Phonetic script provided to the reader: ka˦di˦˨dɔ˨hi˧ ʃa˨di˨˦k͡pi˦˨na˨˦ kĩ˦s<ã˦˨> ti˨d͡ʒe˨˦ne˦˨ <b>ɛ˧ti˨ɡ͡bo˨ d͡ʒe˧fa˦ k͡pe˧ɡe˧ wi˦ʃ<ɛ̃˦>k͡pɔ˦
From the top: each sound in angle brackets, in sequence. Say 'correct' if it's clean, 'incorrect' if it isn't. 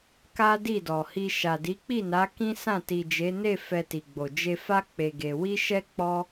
correct, incorrect: f, incorrect: ɛ˦

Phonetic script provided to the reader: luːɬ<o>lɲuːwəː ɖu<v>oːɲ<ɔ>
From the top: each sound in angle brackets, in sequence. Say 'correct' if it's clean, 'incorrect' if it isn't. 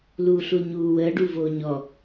incorrect: u, correct, correct

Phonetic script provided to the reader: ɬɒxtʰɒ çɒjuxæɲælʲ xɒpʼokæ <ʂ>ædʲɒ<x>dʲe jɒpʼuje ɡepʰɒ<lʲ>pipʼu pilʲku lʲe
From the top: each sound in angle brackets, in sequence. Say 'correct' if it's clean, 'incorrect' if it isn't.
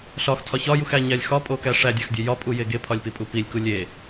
correct, correct, correct

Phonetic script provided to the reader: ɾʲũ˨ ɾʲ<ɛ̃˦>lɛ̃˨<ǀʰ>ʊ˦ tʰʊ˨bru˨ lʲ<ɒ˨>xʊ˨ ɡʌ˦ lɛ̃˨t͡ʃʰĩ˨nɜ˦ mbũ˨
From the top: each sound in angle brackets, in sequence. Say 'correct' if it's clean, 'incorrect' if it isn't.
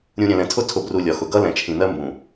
incorrect: ɛ̃˨, incorrect: tʰ, correct

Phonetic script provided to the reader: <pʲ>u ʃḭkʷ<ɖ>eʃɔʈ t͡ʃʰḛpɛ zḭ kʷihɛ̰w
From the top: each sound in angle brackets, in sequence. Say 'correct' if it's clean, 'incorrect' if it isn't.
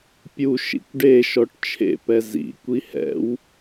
correct, correct

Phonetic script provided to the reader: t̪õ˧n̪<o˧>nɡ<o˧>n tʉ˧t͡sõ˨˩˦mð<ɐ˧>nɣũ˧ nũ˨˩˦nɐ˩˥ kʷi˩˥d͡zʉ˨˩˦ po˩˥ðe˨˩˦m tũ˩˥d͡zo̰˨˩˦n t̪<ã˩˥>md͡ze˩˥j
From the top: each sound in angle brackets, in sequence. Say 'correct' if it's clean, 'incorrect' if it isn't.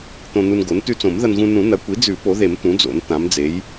incorrect: u˧, incorrect: o˩˥, correct, correct

